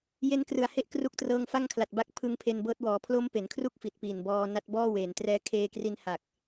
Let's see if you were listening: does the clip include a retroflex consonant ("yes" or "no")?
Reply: no